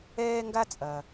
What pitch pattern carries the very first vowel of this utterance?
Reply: high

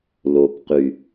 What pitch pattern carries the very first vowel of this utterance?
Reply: low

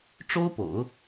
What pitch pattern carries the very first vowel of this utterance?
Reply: high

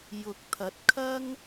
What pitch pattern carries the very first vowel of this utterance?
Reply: rising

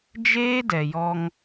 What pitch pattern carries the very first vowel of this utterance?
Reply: high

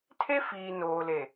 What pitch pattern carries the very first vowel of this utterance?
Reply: high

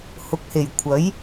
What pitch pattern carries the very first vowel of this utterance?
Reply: rising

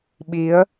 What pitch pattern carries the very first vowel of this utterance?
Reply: rising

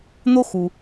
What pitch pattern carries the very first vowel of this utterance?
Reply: high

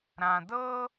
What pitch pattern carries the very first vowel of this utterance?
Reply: low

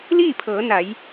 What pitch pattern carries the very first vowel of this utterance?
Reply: falling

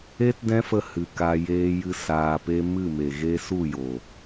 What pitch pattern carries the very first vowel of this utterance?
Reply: high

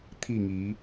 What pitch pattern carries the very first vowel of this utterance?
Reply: falling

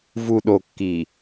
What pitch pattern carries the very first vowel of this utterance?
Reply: low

